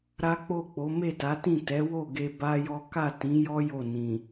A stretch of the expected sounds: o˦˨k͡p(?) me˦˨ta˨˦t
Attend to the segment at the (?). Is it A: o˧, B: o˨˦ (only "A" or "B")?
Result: B